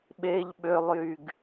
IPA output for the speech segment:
ɓeʎ ɓølˠjyɡ

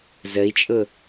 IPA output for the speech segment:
zəi̯t͡ʃʼʊ

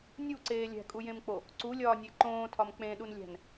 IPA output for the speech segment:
nʲuǀeː lʲæ̤kʼujẽmk͡po | ǀulʲɒːnʲe ǃõːtʰɒm k͡pẽɗunlʲæ̤n

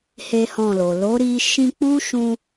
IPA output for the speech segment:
he˦hɔ̃˦˨lo˨ lo˨˦ɾi˧ ʃĩ˧k͡pu˦ ʃũ˧

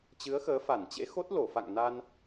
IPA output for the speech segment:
t͡ɕɨ˨˦ə̯xəː˨˦fa˧˩nt͡ɕḛ˧˥ xo˦˥t̚lo˧˩fa̰˧˨ŋ na˧n

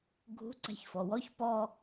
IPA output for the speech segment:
ɡʱṳ ǀæ̤çfɔwɔç pɔ

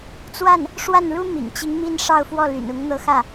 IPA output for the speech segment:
t͡swa˥˩n | ʂwa˥˩nɻu˥ mḭ˨˩ŋt͡ɕi˧˥ŋ mi˥˧n ʂɑ˥˧ʊ̯fwɔ˥˩ ly̰˨˩n ʊ˧˥ŋ n̪ɤ˥xä˥˩

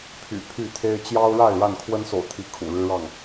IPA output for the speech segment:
pʰy̰˨˩ pʰy˥˨t̪ʰe˦ɪ̯ t͡ɕjɑ˦ʊ̯ɻa˥˨ɪ̯ ɻa˥˨nkʰwə˦nso̰˨˩ʊ̯t̪ʰi˨˦ kʰṵ˨˩ɻɻ̩˦ɻɑ˥˨ŋ

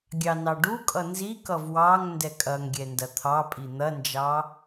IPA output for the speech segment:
ɡʲɑnɑɖukʼʌ nzikʌv wɑŋ ndɛkʼɐŋɡʲɛ ndɐt̪ʰɑpʼi n̪ɐnd͡ʒɑ

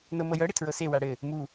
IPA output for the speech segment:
nɤmɤjɤ ɽɪtʰɹɤse waɽɘ | mu

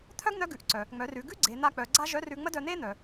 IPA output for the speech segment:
t̪ʰœ˥ɡn̪œ˧˥ ɡʉ˩˧ʔǀœ˩ | ŋ͡mœ˩˧rʉ˩˧ ɡʉ˥ ɡ͡ǀe˩˧n̪a˧k͡pœ˩˧ ɡ͡ǀa˥ ʒœ˧˥rʉ˧ ŋ͡mə˥dœ˧ n̪e˥n̪œ˩

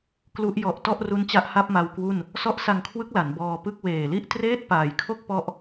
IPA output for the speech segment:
klu˦˥ʔ jɔ˨˩ʔ tɔ˥˩ʔru˦˥nt͡ɕa˦˥ʔ ha˥˩p̚ma˧wkwu˥˩n | sɔ˦˥ʔsa˧ŋkʰwɯ˦˥k̚ la˩˦nbɔː˧pɯ˥˩k̚ weː˨˩li˥˩ʔ treː˥˩t̚paː˨˩jkʰo˥˩k̚ pɔ˥˩ʔ

